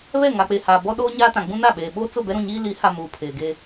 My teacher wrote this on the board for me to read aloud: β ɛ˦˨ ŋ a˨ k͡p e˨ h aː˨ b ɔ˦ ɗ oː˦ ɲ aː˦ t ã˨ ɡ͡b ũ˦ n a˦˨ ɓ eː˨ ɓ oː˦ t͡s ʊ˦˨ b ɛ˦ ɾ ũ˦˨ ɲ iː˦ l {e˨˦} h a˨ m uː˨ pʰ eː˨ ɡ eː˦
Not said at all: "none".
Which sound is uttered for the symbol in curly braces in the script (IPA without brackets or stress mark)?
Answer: i˨˦